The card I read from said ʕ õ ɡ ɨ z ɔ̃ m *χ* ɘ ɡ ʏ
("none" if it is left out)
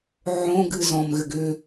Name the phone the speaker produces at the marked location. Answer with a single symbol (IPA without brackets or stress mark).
ɣ